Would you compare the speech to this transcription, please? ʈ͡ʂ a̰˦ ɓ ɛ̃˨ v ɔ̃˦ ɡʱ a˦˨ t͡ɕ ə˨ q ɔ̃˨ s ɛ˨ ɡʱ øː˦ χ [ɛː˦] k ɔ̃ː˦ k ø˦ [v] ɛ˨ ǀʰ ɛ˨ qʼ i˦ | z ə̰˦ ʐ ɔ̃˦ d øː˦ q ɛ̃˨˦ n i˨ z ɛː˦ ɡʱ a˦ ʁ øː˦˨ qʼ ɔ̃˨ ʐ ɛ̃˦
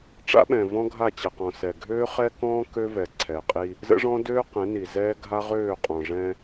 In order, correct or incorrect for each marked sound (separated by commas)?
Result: incorrect, correct